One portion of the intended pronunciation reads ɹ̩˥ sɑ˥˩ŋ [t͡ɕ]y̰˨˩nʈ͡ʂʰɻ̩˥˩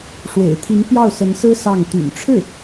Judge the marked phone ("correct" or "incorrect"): incorrect